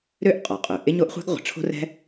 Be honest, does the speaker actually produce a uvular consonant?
yes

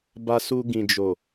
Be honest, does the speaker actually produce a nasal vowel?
yes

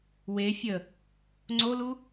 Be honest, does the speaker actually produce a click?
yes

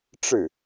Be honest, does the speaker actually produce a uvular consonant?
no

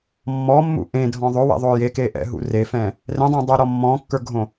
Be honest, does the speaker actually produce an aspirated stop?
no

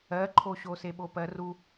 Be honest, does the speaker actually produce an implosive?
yes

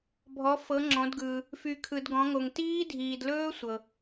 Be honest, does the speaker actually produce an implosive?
no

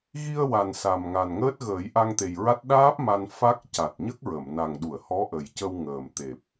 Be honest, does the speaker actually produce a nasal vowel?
no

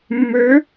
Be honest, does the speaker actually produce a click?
no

